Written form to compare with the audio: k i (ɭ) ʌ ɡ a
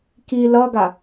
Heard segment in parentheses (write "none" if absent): l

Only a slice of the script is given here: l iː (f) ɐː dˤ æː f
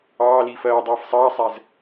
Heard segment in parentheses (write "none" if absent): f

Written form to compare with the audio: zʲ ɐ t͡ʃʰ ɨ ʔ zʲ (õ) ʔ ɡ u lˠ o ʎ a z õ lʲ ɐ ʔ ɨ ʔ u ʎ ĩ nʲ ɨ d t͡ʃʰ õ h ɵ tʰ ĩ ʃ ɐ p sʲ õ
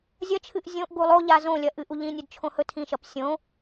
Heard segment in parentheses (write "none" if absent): õ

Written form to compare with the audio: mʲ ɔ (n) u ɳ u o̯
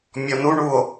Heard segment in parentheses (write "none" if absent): n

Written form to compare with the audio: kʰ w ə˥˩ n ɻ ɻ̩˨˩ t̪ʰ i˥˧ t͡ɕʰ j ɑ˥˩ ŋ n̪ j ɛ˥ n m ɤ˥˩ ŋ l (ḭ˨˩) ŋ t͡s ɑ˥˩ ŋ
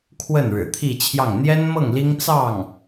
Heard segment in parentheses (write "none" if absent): i˥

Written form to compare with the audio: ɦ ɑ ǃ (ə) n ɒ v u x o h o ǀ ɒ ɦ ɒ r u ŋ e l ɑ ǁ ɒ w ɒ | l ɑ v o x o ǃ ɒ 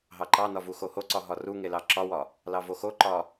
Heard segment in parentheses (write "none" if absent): ɑ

